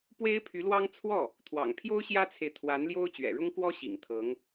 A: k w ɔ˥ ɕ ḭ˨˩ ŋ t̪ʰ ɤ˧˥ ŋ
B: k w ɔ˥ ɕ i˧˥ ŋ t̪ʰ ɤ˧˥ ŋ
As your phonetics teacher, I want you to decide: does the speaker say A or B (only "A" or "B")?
A